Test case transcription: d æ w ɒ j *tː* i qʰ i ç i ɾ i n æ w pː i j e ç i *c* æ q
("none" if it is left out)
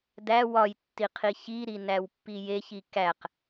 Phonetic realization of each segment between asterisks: tː, k

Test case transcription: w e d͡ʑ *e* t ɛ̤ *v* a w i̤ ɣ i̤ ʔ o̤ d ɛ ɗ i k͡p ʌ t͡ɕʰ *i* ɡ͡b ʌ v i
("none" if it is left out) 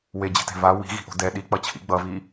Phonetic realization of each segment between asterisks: e̤, v, ḭ

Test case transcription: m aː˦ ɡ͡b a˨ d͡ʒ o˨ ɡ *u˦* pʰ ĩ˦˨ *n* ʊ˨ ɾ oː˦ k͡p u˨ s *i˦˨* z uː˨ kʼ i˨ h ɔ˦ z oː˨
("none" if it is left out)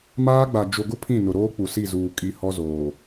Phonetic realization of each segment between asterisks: ʊ˦, n, i˦˨

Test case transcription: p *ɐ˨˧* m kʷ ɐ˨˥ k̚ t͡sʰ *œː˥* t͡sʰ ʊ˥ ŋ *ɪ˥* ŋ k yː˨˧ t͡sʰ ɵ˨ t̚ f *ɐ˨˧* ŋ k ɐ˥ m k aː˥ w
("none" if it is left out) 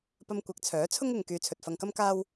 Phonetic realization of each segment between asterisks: ɐ˧, œː˨˥, ɪ˨, ɐ˧

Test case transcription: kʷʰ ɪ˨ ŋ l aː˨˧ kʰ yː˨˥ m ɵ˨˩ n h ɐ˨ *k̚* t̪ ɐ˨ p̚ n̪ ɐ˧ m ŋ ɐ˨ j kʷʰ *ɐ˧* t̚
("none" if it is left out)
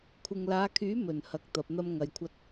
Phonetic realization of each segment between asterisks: k̚, ɐ˧

